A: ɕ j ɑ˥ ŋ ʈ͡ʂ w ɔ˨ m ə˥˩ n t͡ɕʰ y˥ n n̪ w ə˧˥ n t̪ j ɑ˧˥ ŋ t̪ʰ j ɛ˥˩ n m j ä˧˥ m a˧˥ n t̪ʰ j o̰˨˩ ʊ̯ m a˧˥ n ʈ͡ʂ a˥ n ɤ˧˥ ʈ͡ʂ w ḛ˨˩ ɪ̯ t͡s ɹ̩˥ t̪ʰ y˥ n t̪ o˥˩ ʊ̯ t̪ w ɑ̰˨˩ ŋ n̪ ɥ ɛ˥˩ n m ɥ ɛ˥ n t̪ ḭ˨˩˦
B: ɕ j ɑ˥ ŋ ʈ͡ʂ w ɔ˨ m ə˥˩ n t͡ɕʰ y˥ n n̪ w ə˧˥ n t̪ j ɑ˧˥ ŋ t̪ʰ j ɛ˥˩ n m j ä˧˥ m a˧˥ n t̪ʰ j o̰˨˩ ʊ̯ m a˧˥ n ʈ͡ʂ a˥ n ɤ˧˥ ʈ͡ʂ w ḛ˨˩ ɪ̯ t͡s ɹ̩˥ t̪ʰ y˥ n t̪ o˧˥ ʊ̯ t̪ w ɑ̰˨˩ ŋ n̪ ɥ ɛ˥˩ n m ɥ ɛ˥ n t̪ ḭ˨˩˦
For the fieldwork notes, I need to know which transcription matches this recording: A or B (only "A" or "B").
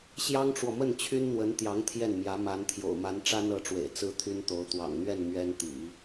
B